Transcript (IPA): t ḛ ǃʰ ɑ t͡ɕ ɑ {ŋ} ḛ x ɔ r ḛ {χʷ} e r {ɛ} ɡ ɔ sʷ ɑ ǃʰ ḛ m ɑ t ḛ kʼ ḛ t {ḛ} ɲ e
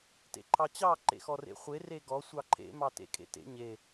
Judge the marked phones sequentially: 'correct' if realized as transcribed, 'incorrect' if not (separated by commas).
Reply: incorrect, correct, incorrect, correct